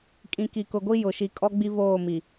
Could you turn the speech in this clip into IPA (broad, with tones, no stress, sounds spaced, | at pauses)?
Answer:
kʼ ĩ˨ k i˨ k ʊ˨ ɡʷ i˦ j ʊ˨ ʃ i˨ kʼ ɔ˦ ɡ͡b i˦ v oː˦˨ m i˨